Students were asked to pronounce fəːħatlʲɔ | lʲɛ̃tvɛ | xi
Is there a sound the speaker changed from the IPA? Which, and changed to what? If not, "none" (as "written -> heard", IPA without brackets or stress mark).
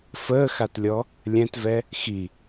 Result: ħ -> x